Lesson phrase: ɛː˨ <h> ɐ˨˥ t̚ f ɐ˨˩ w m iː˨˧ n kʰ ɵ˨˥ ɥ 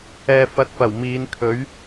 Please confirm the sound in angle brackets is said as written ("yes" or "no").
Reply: no